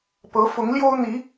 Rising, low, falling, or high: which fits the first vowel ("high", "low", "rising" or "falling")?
rising